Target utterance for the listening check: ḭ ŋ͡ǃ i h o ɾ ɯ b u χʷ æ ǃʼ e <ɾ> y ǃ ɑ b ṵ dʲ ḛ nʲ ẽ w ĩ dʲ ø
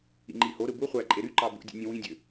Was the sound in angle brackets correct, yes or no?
yes